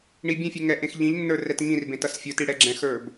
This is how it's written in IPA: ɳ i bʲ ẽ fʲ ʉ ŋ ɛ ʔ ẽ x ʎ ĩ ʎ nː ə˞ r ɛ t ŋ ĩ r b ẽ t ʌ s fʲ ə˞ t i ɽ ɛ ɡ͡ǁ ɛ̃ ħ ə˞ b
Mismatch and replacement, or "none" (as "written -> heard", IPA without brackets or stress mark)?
ħ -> x